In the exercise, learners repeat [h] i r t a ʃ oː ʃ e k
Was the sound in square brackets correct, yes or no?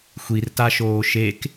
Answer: no